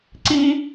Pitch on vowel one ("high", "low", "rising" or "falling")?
high